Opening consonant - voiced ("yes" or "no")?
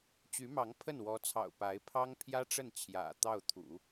no